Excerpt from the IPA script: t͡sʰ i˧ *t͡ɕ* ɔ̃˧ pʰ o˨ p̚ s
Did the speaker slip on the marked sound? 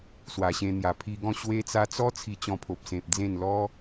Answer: no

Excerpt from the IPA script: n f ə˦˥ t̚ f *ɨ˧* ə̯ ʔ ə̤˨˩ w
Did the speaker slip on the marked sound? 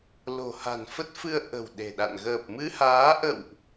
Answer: no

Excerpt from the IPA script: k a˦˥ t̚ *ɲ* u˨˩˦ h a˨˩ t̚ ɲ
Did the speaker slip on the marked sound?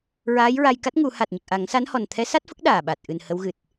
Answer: yes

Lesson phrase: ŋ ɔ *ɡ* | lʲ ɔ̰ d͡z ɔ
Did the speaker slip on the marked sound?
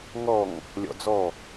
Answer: yes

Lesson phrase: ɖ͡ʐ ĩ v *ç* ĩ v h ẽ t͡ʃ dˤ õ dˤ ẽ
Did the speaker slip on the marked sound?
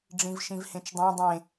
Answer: yes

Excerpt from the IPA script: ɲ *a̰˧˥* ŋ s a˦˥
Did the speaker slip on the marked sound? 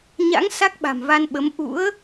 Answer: no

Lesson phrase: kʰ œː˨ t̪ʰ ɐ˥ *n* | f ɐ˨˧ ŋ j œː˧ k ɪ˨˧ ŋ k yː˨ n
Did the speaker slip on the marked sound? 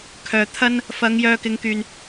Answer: no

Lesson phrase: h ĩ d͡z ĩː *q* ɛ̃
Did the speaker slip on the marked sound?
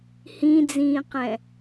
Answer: no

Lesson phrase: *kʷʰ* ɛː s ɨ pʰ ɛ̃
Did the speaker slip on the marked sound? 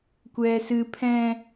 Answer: yes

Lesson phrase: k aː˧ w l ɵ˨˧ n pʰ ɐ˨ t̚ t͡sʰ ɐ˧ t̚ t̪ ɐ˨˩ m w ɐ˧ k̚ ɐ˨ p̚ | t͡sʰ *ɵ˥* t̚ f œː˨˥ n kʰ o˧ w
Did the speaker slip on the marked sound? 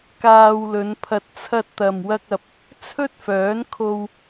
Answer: no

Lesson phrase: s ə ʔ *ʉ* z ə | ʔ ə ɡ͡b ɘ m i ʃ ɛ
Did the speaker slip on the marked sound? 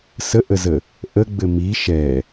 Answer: yes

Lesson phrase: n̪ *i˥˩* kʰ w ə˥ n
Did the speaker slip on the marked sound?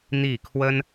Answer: no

